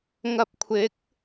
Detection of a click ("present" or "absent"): absent